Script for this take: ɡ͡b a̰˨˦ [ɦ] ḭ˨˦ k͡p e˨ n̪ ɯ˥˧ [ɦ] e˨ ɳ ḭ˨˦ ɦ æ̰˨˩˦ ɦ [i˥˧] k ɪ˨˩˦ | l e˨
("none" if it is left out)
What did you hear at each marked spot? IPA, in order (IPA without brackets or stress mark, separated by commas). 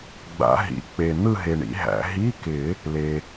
ɦ, ɦ, i˧˥˧